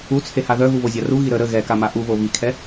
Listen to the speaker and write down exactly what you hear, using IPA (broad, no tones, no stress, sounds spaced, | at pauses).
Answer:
u t͡sʰ e h a ð œ ɣ u β o zʲ a r u ɣ i ɾ ə ɾ ə ɣ ɛ k a m a ʔ u β o β i kʰ ɛ